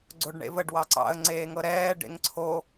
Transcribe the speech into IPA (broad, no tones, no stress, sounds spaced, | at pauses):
ɡ͡ǀ o ɖ ɳ ḛ v ə ɖ w ɑ ǀ ɑ̰ ə̯ ŋ͡ǀ eː ŋ ɤ ɾ ɛː ɖ ḛ ŋ ǀʰ o